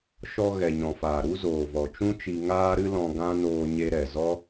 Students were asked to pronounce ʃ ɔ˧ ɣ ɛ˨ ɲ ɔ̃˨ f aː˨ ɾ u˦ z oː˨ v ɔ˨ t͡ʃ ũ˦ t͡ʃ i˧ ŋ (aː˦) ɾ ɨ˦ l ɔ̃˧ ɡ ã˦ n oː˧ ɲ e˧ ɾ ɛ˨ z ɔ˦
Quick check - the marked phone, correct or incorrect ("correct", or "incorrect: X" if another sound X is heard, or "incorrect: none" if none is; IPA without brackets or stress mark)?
correct